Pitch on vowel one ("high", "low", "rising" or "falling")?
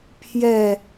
falling